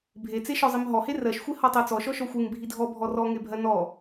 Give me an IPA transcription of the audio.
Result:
bʱ e t͡s e ʃ ɔ zˤ i m ɦ ɔ h e r ɜ ʃ xʷ e h ɔ tˤ ɜ t͡s ɔ ʃ ɔ ʃ ɔ xʷ e ŋ bʱ i dʱ ɔ bʱ ɔ r ɔ ŋ e bʱ ɜ n ɔ

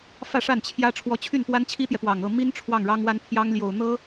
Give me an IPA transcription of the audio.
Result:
f ä˥˧ ʂ a˥˩ n t͡ɕʰ j ä˥ ʈ͡ʂʰ w ɔ˧˥ t͡ɕʰ y˥˩ n p w a˥ n t͡ɕʰ i˥ t̪ j ɛ˨ p w ɑ˨˩ ŋ ɤ˥˩ m i˥ n ʈ͡ʂʰ w ɑ˥˩ ŋ ɻ ɑ˥ ŋ w a˥ n pʰ j ɑ˥ ŋ l j o˨˩ ʊ̯ n̪ ɤ˥

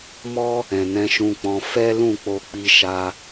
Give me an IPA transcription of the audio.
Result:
m ɔ˦ | ɛ̃˨ n ɛ̃˧ ʃ ũ˧ k͡p ɔ̃˧ f ɛ˦ l ũ˦˨ k͡p o˧ k͡p i˧ ʃ a˧

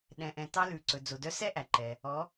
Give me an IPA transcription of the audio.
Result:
ɗ ɛ̃˩ ʔ ɛ̃˩ t ɑ˧ l ʉ˩ ǀ ɵ˩ d͡z o˩ d œ˧ s ɛ˥ ʔ æ˩ ǃ ɛ˩ | ɔ˩˧

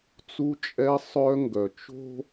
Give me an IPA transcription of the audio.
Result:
t͡s u˦ t͡ʃʼ ɛ˦ sˤ œ˦ ŋ ɡ œ˨ t͡ʃ o̤˦

